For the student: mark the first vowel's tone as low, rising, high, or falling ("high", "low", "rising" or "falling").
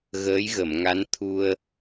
rising